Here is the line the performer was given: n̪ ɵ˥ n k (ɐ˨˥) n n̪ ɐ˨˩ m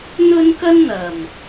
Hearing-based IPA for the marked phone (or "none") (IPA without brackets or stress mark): ɐ˥